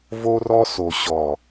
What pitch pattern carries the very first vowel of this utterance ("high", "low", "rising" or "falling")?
high